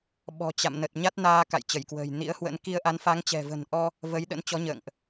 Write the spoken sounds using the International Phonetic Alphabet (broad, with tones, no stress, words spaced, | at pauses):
ɓɔ̤˨˩t͡ɕa̰˧˨mnə˨˩t̚ ɲa˦˥t̚naː˧ ka̰˧˨jt͡ɕə˧˩jkwə̤ː˨˩jnḭ˧˥ə̯ hwə̰˧˥n ki˧ə̯ʔa˨˦nfa˨˦ŋt͡ɕɛ̤˨˩ və̤˨˩nʔɔ˧ | və˨˦jɗə̰˧˥n t͡ɕɔ˨˦ɲə̰ː˧˨ŋʔ